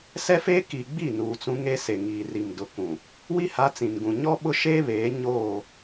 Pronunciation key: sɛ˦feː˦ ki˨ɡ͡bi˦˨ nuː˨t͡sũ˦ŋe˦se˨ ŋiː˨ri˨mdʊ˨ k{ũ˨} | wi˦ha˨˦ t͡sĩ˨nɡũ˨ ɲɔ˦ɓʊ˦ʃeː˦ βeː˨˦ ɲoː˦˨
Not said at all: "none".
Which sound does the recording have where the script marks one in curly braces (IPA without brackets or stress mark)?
ũ˨